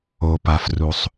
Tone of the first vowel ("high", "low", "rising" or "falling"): low